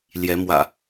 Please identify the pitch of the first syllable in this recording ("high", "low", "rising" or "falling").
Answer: rising